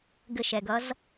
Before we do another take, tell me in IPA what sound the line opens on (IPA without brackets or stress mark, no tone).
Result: ɡ